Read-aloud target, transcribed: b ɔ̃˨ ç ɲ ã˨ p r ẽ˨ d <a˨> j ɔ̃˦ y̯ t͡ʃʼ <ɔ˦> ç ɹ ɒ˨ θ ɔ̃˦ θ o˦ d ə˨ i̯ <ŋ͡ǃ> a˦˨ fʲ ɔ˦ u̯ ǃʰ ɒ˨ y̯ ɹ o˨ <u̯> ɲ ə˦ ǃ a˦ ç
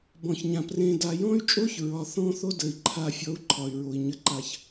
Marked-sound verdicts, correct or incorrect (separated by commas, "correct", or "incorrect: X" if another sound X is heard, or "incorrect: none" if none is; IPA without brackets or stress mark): correct, incorrect: o˦, incorrect: ǃʰ, incorrect: i̯